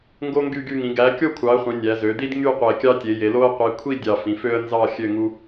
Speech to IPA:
ŋ ɡ o˦ ŋ ɡ y˦˨ ɡ y˦˨ ŋ ĩ˩˧ ɡ æ˩˧ kʲ o˦˨ kʷʰ ɑ˩˧ ə̯ χʷ ĩ˩˧ nʲ æ˩˧ z ø˩˧ d̪ i˦ d ŋ y˦˨ qʷ e˨˩ kʲ ɑ˦ tʲ e˩˧ j e˩˧ l o˦ ə̯ qʷ i˩˧ kʷʰ i˦˨ dʲ ɑ˨˩ f ĩ˩˧ f ø˦ ə̯ n z ɑ˦˨ xʲ ø˦˨ ŋ u˦

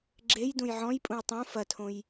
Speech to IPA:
ɡ͡ǁ e j d ũ j ʕ ɔ̃ j pʼ ũ j tˤ ũ f ɐ tʰ õ j

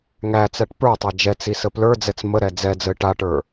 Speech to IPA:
ŋ æ t͡s æ ʈ p ə˞ tˤ a d͡ʒ ɛ t͡s i s ə p l ə˞ d͡z ɛ t͡s m ə ɾ ɛ d͡z ɛ d͡z ə ɪ̯ ʈ a ʈ ə˞

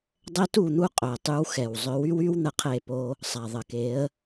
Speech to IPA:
dˤ ɛ˦ t u˦˨ n̪ u˦ qʼ œ˨ ə̯ tˤ y˦ w x ɛ˨ w zˤ œ˨˦ w y˦ w y˦ w n̪ ə˦ qʰ e˦˨ p o˦ | sˤ a˨ ðˤ ə˨ k e˨˦ ə̯

